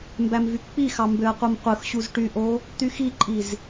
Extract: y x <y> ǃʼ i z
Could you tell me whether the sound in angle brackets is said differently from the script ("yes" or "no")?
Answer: yes